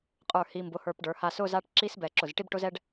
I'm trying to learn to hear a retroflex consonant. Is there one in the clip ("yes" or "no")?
yes